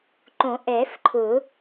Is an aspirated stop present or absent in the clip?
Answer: present